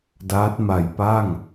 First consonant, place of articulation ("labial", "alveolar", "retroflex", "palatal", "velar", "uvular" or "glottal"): alveolar